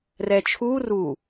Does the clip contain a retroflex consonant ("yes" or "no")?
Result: no